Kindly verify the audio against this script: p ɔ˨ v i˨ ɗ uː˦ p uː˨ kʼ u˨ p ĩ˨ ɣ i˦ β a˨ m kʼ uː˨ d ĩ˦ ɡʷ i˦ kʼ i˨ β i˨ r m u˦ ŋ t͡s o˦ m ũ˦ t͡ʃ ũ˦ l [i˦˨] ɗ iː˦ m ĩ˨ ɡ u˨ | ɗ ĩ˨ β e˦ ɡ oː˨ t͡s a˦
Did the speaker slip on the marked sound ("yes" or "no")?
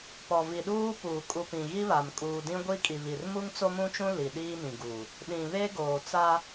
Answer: yes